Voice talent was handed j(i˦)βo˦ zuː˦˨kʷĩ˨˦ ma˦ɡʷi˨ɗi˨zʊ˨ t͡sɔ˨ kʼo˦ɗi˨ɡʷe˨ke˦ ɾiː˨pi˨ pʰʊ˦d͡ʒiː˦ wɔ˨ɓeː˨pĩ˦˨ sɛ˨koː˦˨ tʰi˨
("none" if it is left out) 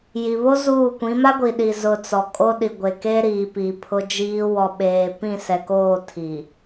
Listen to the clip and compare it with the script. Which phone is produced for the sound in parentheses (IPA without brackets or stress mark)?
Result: i˨